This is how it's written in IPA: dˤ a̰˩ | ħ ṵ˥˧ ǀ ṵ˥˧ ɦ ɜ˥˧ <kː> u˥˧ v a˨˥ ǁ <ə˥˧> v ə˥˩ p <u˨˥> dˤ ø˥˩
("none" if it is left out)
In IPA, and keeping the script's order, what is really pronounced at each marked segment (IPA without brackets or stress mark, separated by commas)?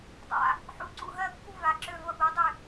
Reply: kː, ø˥˧, u˨˥